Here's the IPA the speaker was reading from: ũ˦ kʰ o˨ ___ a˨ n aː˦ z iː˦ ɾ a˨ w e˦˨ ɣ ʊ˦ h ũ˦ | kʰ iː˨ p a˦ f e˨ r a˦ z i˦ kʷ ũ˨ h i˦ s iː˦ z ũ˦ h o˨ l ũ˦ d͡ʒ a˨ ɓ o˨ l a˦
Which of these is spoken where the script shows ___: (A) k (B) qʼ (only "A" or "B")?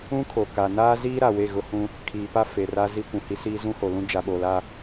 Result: A